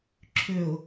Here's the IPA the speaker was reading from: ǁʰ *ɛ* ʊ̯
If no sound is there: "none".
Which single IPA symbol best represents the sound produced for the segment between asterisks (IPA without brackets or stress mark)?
ø